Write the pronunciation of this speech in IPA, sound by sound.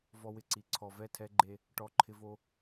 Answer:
v ɔ˧ w ɪ˨ ǀ i˨ ǀʰ ɔ˨ v ɛ˦˨ tʰ ɛ˧ ɡ͡ǃ e˧ | ʈ ɔ˧ ǃʰ ɪ˧ v o˧

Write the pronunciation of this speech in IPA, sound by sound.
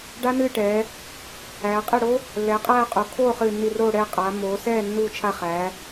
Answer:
ɖ a˦˥ n ɨː˥˩ ʈ ɛː˩˧ | æː˩˧ qʼ ɛ˥˩ ɽ o˦˥ | lː ɛː˩˧ qʼ æː˥˩ qʼ o˩˧ kʰ oː˥˩ χ ɨː˧˩ nː i˧˩ r oː˥˩ ɽ ɛː˥˩ qʼ aː˩˧ mː oː˩˧ s ɛː˥˩ nː uː˧˩ t͡ʃʰ a˧˩ χ æː˩˧

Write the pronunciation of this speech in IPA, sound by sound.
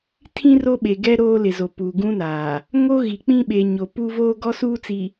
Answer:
tʰ ĩ˦ r o˦ ɓ e˨ ɡ ɛ˦ ɾ oː˦ l ɪ˨ z o˨ p uː˨ ɡ ũ˦ n aː˨ | ŋ o˦ ɣ i˨ k͡p ĩ˦ ɓ e˨ ɲ o˨ p u˦ v oː˦ ɡ ɔ˦ s uː˦ t͡s i˨

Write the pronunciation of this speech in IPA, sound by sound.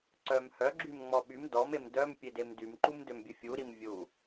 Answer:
ǀ œ m h œ ɡ͡ǁ y m ŋ͡m ɔ ɓ y m d ɔ m e m d œ m pʲ e d e m d y m ǃ u m d ø m bʲ ə fʲ u ɾ i m vʲ u

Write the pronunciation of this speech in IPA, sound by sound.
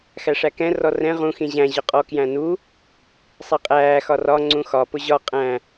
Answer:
x æ ʂ æ k ɛ̃ r ɔ r ɛ̃ ʁ ũ x ĩ ʑ æ̃ ʑ ɒ qʼ ɔ k j æ̃ n u | sˤ i qʼ æː x ɒ r ɒ ŋ͡ǀ ũ x ɒ p ʊ ʑ ɒ qʼ æ̃

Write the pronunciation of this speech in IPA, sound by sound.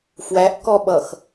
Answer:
f w æ ʔ k ɔ ɓ ʌ x

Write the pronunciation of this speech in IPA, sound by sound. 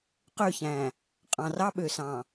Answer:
q ø˦˨ ç æ̃˨ | qʼ ɑ̃˨ r ɑ˦ ɓ ø˨ s ɑ̃˨

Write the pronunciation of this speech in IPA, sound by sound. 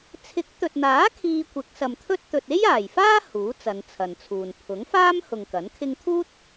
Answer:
t͡sʰ ɪ˨˥ k̚ t̪ ɵ˨ t̚ n̪ aː˨˥ kʰ iː˧ kʷ ɪ˨˥ k̚ s ɐ˨ m t̪ʰ ɵ˥ t̚ t̪ ɵ˨ t̚ e˥ j aː˨˩ j f aː˥ h uː˨˥ t͡s ɐ˨˧ n t͡sʰ ɐ˨ n t͡sʰ uː˨ n pʰ ʊ˨˥ ŋ f aː˥ m h ʊ˨ ŋ k ɐ˨˥ n kʰ ɪ˥ ŋ t̪ʰ uː˥ t̚

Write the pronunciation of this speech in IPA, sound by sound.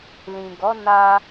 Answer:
l ĩ˨ ɡ ɔ˨˦ n a˧

